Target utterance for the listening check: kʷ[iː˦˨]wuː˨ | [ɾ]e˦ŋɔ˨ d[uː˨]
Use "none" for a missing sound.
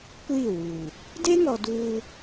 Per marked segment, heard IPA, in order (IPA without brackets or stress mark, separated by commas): iː˦˨, d, uː˦